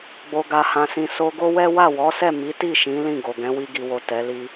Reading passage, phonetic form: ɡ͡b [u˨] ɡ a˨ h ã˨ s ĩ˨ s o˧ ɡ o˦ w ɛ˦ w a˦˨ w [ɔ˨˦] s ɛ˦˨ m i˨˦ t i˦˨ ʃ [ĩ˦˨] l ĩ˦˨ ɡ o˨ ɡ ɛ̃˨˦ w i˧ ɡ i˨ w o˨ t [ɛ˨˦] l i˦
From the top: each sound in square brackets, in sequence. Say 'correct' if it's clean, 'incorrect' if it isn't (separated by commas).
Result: incorrect, correct, incorrect, correct